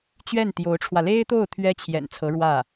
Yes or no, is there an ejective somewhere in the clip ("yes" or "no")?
no